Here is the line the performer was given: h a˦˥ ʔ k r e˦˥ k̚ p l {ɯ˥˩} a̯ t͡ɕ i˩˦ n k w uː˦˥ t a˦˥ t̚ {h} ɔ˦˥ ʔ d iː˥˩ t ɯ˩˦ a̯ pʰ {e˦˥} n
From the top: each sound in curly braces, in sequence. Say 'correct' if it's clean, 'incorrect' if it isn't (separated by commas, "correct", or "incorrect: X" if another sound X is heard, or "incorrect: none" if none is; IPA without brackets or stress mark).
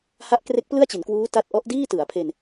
correct, incorrect: ʔ, incorrect: e˧